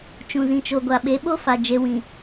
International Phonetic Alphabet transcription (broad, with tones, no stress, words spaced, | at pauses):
t͡ʃũ˨zĩ˨t͡ʃo˨ ɡʷa˨ɓe˨˦ɓo˦fa˨ d͡ʒe˦ wĩ˨